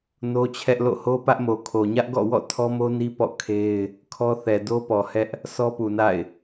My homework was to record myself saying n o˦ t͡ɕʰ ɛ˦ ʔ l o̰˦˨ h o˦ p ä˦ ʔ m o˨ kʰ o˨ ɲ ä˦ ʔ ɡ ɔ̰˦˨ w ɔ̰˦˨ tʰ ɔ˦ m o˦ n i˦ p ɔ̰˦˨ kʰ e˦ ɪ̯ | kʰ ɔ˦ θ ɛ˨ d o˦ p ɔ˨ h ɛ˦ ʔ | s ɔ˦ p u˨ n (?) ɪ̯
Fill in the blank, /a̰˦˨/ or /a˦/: a̰˦˨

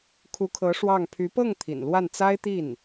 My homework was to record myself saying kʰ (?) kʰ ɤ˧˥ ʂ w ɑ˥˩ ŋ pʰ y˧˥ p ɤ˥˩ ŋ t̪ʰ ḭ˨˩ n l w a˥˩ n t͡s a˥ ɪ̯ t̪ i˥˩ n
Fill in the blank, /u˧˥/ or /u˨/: u˧˥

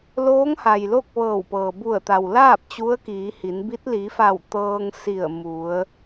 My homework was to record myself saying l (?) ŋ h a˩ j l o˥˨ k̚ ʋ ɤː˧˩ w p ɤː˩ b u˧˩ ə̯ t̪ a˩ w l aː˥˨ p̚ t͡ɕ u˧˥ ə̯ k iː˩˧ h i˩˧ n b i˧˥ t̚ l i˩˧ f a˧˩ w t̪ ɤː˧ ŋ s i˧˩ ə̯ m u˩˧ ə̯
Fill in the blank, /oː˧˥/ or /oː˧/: oː˧˥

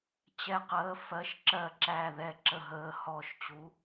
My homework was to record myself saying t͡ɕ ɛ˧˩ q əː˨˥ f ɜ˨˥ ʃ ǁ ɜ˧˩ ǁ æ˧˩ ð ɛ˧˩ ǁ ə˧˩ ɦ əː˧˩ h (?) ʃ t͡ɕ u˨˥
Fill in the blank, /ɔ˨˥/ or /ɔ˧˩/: ɔ˧˩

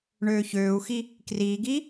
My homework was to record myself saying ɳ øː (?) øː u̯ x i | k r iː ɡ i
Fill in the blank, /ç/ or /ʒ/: ç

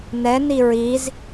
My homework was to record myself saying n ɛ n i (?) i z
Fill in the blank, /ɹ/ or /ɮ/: ɹ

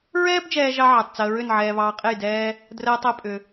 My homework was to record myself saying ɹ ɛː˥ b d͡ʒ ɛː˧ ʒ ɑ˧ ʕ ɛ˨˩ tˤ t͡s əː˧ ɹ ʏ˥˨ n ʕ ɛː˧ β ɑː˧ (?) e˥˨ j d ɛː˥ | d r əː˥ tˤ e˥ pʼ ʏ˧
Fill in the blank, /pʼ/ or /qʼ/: qʼ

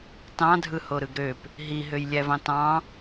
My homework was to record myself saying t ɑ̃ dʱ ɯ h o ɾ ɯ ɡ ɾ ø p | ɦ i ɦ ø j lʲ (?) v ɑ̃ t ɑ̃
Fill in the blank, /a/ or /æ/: æ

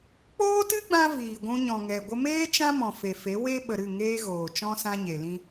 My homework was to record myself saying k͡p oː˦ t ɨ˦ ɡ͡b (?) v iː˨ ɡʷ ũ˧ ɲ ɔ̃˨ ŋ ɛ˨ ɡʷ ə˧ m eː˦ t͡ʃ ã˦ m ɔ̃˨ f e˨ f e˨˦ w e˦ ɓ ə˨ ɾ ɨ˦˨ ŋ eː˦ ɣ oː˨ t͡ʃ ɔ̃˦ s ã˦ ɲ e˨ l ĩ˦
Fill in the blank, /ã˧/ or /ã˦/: ã˧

